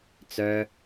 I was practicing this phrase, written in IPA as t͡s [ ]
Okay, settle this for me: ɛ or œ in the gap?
œ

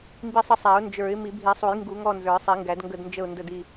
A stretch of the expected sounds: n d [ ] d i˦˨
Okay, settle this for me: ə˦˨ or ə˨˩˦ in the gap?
ə˦˨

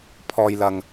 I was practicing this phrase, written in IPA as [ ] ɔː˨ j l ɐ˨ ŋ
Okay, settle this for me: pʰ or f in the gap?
pʰ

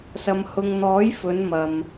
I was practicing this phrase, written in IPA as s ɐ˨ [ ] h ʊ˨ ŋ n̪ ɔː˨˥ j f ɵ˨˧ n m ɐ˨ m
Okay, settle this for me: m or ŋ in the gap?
m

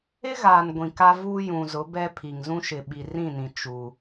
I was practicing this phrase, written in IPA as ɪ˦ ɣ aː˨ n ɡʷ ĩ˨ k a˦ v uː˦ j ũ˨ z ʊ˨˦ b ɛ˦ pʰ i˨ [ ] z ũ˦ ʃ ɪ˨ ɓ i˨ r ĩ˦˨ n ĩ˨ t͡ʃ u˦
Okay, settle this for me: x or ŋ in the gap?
ŋ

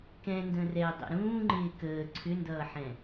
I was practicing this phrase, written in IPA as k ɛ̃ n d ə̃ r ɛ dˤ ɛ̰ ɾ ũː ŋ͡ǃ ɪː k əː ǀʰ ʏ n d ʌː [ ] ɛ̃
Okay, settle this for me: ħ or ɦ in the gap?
ħ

